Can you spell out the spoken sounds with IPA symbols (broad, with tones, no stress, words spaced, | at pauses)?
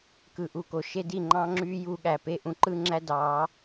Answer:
kɯ˨ʔu˨ko˨ ʃe˦di˦˨ŋ͡ǃɑ̃˦ŋ͡ǁyː˦ ju˧ɠæ˨pe˦˨ ʔũ˦ǃɯ˦ŋ͡ǁæ˦dɑː˨˦